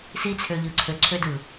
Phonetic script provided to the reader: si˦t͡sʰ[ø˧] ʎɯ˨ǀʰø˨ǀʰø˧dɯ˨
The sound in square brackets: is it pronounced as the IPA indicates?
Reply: yes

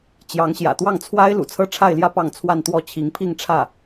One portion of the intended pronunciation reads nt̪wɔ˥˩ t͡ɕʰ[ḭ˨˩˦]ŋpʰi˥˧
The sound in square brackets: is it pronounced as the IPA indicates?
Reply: no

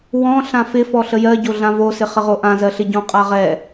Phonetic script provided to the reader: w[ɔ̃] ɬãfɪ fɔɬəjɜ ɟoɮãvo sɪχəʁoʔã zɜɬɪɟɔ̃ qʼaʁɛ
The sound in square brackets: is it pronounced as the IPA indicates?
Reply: yes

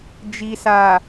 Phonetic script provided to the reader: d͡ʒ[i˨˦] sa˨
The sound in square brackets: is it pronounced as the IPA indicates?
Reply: no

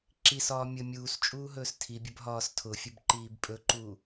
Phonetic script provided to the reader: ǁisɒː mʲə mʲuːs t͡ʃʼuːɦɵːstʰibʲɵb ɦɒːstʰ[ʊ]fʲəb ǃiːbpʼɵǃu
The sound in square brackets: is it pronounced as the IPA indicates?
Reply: yes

